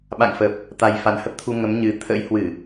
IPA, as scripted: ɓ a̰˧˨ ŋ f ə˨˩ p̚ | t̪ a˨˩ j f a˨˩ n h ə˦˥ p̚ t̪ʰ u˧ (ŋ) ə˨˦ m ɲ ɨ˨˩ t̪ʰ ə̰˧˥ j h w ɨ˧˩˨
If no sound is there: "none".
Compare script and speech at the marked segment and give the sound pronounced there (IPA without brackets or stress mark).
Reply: ŋ